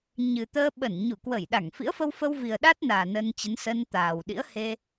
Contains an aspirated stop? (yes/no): no